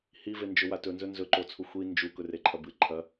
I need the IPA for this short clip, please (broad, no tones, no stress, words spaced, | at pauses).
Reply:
hivend͡ʒɵ watɵnzɵ nzɵǃot͡sʰu xʷi nd͡ʒu kɵreǃʰɐbɨ ǃʰɐ